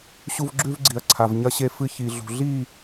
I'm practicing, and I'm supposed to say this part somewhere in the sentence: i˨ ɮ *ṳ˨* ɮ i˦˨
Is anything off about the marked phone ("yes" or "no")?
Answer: no